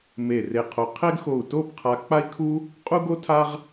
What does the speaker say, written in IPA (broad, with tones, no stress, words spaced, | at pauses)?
me˧˩re˧˩qʰo˧ qʰe˥ɡxo˧˩u̯ to˥˧pqʰa˧ k͡pa˥i̯kʰu˥ | qʼu˥ɡo˥tʰa˥ʁ